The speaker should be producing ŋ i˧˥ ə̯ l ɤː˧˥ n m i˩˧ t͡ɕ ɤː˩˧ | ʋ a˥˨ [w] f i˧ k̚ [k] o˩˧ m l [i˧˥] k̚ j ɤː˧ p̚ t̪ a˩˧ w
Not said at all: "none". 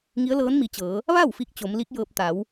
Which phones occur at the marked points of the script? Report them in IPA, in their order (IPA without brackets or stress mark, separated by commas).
w, t͡ɕ, i˧˥